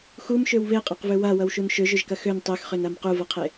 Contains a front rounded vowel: yes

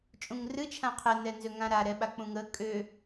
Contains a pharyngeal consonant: no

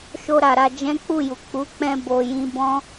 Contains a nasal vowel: yes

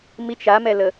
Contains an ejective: no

